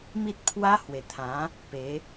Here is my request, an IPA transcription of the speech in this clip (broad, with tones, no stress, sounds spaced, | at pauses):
m i˦ t̚ pʰ w a˦ h w e˨˩ t̪ʰ ã˨˦ | p e˨˦